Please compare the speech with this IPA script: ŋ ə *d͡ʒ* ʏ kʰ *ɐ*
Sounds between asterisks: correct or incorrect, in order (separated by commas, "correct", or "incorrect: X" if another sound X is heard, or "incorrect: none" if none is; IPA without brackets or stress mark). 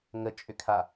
incorrect: t͡ʃʼ, incorrect: a